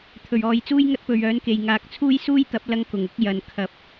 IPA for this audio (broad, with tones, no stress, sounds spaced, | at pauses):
t̪ʰ ɵ˨˩ ɥ ɔː˨ j t͡s uː˥ j ŋ ɐ˥ t̚ p ɵ˨ ɥ œː˨˥ n k e˨˩ j ŋ aː˨˥ k̚ t͡sʰ uː˥ j s uː˥ j t̪ ɐ˨˥ p̚ l ɐ˧ ŋ k ʊ˨˩ ŋ ʊ˨˥ k̚ j ɐ˨˩ n kʰ ɐ˨˥ p̚